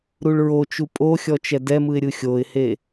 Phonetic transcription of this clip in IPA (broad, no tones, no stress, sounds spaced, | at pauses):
ɾ u ɭ ɹ o t͡ʃ u pʼ o xʲ ɔ t͡ʃ ɛ d ɛ m ɯ ɪ̯ ɾʲ ɯ xʲ o ɪ̯ h e